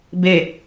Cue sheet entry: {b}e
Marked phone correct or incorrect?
correct